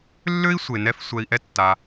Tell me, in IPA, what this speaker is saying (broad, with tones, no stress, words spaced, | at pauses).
lːø˦i̯ sʷe˧nɛ˦f sʷɛ˧i̯ʔɛ˦tːa˧